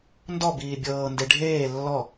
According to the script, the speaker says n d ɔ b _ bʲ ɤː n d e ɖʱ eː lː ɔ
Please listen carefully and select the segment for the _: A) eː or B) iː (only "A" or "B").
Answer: B